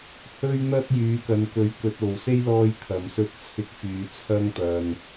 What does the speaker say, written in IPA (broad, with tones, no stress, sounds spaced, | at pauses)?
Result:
h ɵ˧ ɥ n̪ ɐ˧ t̚ j yː˨˧ k ɐ˨ n k ɵ˨ ɥ k ɵ˧ t̚ o˨ w s e˥ j l ɔː˧ j t̪ʰ ɐ˨˧ m s ɵ˥ t̚ t͡sʰ ɪ˥ k̚ f yː˧ t͡sʰ ɐ˥ ŋ t̪ ɐ˧ n